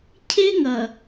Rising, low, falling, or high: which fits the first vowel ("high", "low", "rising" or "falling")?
high